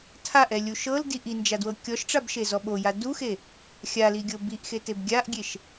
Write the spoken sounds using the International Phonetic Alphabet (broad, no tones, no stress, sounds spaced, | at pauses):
tʰ a ʔ ɛ lʲ u ʃ ɤ l d i ʔ i n d͡ʒ a d w ɤ kʲ ɔ ʃ ʈ͡ʂ a b ʃ e z ɔ ɓ o j a d u x e | xʲ a l i ɡʲ ɤ b i ʔ x e t e b ɡʲ a ʔ ɡʲ e ʃ